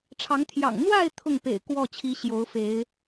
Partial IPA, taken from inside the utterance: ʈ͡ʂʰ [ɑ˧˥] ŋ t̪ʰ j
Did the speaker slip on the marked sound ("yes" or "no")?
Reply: no